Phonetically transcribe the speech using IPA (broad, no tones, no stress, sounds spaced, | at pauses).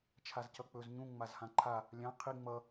t͡ʃʰ a z c ʌ k͡p ɵ z ɲ ũ ŋ͡m a z h ã ǃʰ a | lʲ ã qʰ i ŋ͡m ʌ